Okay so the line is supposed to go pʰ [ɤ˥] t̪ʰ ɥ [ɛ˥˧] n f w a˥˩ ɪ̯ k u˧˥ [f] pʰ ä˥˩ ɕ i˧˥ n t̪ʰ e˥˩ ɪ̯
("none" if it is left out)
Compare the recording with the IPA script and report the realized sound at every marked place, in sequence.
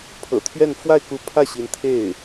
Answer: ɤ̰˨˩, ɛ˥˧, none

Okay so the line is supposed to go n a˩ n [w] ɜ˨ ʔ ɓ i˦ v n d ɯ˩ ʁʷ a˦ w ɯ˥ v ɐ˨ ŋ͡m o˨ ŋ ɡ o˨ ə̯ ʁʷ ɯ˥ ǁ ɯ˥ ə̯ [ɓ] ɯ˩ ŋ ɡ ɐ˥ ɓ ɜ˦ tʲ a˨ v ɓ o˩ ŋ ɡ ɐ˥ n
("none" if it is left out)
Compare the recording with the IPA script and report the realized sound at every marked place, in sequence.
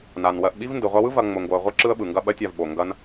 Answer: w, ɓ

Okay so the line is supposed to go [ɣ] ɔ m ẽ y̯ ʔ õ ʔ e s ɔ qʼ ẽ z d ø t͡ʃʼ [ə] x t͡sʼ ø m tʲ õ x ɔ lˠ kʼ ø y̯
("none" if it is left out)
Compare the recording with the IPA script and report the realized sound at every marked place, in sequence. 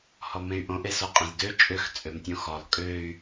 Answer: h, ø

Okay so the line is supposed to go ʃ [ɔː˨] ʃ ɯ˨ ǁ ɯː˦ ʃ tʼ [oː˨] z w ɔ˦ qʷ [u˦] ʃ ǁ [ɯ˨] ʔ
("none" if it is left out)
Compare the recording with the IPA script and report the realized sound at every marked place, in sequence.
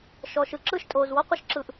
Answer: ɔː˨, oː˨, ɯ˦, ɯ˨

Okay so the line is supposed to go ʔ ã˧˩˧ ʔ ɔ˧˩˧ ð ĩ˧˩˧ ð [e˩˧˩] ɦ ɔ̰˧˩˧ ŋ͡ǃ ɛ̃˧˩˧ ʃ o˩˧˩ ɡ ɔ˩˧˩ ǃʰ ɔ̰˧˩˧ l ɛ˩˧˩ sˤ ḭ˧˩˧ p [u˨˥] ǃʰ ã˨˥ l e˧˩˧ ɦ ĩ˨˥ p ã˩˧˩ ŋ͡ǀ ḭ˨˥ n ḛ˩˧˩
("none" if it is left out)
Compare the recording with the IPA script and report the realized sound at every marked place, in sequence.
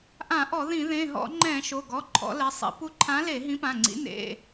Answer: ẽ˩˧˩, u˨˥

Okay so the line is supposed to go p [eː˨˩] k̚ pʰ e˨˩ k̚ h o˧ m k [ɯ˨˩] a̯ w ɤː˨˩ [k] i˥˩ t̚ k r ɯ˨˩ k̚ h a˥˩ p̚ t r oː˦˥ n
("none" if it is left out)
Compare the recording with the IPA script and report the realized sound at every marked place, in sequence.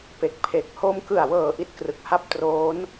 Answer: e˨˩, ɯ˨˩, ʔ

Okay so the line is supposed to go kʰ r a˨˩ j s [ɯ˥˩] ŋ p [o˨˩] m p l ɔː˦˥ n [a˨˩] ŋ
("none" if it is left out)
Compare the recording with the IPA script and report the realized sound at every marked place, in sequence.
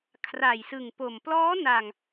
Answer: ɯ˨˩, o˨˩, a˨˩

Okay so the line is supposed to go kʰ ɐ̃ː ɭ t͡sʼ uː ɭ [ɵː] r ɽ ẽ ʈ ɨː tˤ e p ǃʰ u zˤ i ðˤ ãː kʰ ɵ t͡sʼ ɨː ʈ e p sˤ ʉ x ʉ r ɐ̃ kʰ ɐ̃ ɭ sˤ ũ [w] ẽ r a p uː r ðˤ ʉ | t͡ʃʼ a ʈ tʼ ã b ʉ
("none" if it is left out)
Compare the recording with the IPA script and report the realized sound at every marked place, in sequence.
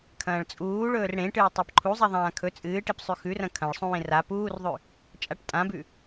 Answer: ɵː, w

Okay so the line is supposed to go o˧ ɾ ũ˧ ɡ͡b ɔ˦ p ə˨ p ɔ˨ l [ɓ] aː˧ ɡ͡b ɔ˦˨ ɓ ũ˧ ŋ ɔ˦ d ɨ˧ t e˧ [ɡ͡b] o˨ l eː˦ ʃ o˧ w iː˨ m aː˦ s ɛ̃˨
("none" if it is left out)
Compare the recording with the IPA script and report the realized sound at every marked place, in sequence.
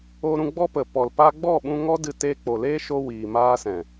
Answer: p, k͡p

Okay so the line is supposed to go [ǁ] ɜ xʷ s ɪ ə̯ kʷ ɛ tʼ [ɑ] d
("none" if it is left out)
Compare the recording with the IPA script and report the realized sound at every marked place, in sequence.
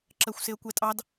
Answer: ǁ, ɑ

